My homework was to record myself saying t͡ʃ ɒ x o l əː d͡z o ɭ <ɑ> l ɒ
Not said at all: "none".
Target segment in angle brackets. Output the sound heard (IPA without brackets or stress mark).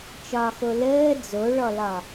ɔ